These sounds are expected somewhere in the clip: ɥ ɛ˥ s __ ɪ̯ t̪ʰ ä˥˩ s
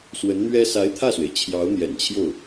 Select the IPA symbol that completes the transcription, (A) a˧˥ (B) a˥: A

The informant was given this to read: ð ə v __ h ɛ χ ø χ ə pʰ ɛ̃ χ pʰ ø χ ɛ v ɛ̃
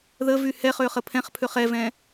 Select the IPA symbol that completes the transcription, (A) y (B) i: A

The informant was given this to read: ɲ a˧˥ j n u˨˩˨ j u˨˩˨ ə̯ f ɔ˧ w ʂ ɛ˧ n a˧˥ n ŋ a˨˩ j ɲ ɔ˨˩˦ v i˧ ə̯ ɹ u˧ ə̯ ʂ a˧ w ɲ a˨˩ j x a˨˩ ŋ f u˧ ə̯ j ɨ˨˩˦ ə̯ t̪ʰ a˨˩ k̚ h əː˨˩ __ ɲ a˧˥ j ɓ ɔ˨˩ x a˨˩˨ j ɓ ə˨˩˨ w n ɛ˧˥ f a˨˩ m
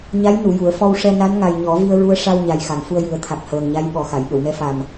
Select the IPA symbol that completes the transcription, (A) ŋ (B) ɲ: A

